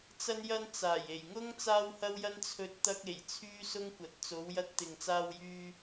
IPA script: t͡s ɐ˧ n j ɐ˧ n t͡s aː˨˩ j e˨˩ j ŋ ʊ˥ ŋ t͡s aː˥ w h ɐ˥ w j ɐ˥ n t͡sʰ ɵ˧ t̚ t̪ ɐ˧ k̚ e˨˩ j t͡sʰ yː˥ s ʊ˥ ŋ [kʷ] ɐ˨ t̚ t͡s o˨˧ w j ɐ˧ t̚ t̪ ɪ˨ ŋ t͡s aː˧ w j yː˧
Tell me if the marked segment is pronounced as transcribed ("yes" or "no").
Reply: yes